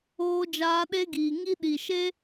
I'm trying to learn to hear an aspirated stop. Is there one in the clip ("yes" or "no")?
no